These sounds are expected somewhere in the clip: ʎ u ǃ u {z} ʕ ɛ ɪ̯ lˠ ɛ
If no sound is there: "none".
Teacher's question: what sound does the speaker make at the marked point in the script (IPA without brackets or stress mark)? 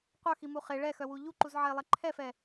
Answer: z